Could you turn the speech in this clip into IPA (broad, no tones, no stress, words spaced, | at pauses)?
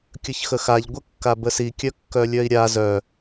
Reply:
kʲəçxəxaʎ ɡʷəkːabəsi kʲœkːœlʲœi̯ɾʲa zœ